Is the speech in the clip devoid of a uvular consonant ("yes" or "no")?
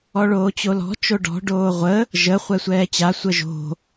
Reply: no